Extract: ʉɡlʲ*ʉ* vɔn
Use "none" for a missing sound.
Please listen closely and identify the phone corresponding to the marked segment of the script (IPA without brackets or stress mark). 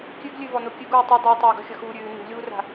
ʉ